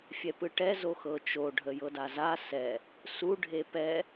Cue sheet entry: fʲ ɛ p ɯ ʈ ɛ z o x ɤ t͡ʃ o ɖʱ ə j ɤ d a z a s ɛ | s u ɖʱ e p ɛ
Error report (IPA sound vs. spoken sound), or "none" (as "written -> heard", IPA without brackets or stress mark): none